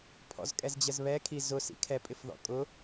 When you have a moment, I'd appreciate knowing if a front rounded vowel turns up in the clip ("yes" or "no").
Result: no